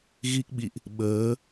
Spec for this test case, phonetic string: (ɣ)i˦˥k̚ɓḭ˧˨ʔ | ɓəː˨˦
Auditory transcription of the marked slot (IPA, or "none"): ɣ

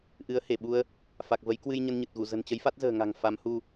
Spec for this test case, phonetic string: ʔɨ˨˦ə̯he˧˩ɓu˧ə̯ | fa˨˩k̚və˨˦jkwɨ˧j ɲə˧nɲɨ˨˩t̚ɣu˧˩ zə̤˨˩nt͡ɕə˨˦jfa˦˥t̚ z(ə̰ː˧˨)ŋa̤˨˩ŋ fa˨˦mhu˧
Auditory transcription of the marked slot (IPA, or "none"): ə̤ː˨˩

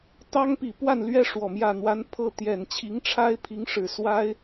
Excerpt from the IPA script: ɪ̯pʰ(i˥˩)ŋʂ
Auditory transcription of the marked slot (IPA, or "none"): i˧˥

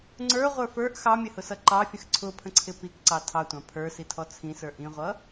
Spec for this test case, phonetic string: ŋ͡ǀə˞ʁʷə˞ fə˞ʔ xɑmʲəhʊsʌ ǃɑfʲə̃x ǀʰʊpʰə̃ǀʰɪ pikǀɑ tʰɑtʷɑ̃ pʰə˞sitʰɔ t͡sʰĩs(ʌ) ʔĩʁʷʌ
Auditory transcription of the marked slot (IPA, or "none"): ə˞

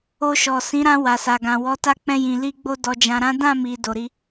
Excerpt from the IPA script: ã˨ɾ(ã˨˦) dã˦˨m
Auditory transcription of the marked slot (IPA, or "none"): ã˨˦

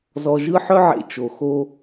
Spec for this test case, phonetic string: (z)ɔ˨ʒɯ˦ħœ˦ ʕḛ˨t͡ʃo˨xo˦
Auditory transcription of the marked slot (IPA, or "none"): z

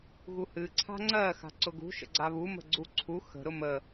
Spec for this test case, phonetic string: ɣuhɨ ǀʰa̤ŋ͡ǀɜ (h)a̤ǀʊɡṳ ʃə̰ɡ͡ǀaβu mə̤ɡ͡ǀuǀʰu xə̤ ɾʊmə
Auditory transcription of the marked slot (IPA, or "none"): x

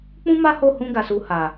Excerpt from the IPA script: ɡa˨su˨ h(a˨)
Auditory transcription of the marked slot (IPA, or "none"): a˨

